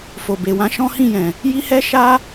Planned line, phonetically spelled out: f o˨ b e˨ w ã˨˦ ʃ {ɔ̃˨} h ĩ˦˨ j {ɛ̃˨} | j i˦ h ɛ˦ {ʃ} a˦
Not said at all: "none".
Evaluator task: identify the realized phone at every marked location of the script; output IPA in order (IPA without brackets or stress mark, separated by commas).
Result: ɔ̃˦, ɛ̃˨, ʃ